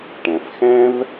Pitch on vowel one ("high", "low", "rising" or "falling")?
low